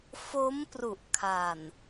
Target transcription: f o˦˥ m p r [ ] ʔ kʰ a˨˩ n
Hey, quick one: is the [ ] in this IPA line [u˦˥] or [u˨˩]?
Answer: u˨˩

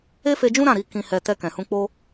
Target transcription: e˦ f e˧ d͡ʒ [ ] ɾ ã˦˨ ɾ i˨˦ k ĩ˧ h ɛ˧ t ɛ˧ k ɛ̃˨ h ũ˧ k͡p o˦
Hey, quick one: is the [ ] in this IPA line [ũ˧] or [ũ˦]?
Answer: ũ˦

